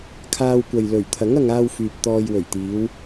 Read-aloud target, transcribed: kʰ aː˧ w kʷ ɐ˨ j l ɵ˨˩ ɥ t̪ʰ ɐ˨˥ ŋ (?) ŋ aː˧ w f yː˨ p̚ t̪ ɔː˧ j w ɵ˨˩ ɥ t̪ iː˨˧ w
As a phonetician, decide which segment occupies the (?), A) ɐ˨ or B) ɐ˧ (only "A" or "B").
B